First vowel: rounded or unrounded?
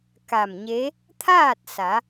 unrounded